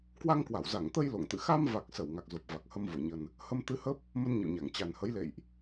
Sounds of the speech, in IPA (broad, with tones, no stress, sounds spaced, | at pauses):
k w a˧ ŋ k w a˧˩ w z a˧˩ ŋ t̪ ə˧ j l o̰˧˨ ŋ t̪ ɨ̰˧˨ x a˧ m v a˨˩ k̚ s ə˧˩ w ŋ a˨˩ k̚ z o˨˩ p̚ v a˨˩ k̚ h ə˧ m v o˧˩ ɲ ə˨˩ n | h ə˧ m t̪ ɨ˧ h ə˦˥ p̚ | m ə˧ n ɲ ə̰˧˨ w ɲ a˧˩ ŋ t͡ɕ a˨˩ n h ə˨˦ j l ḛ˧˨ j ʔ